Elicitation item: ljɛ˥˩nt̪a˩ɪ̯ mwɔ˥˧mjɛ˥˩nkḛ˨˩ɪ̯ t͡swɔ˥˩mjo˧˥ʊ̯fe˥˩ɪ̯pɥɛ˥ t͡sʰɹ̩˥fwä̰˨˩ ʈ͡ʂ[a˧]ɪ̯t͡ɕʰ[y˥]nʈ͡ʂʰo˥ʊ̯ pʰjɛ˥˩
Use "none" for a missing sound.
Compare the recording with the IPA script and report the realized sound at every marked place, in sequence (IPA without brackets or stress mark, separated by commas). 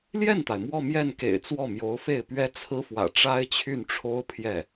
a˥, y˥˩